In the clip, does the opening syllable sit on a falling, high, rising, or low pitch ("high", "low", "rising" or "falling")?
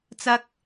high